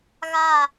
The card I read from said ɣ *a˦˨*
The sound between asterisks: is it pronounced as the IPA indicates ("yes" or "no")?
yes